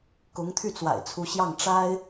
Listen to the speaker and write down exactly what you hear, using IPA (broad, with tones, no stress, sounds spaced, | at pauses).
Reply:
k ʊ˧˥ ŋ t̪ʰ y˥˩ t͡s w a̰˨˩ ɪ̯ t͡sʰ u˧˥ ɕ j ɑ˥˩ ŋ ʈ͡ʂ a˥ ɪ̯